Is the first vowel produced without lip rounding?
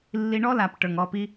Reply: yes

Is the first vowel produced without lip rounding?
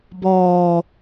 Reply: no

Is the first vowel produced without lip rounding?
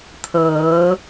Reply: yes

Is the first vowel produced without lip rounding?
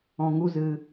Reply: no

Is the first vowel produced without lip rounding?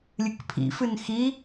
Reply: yes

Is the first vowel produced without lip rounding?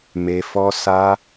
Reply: yes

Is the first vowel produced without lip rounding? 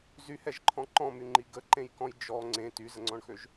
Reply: no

